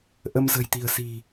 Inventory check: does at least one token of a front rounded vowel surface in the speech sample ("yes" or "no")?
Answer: no